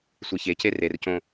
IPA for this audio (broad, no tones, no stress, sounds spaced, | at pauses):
sʷ e ç e c e r e r c õ